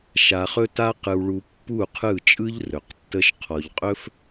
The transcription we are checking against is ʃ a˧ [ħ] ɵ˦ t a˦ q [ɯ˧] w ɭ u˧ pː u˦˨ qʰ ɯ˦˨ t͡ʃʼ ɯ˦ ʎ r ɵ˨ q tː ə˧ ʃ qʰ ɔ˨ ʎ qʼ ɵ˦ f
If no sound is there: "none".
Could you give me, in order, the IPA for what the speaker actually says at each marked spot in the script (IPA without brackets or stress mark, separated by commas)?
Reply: χ, ɯ˧